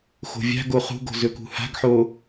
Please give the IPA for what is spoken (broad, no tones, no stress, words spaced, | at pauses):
xo̤vʲa̤ɡo χṳɡo̤ zɵkṳha̤ɡħo